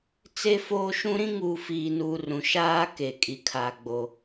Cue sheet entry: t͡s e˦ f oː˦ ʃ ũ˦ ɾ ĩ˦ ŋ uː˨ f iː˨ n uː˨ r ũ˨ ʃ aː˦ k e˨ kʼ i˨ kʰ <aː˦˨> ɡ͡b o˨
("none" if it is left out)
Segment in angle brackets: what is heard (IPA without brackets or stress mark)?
aː˨